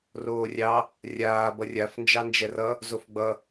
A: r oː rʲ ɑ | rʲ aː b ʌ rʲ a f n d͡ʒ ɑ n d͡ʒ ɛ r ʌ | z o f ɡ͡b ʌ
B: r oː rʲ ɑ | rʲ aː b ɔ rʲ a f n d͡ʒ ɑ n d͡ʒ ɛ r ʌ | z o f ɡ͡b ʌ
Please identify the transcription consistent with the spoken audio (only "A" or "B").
A